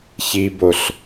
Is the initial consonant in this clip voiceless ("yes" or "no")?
yes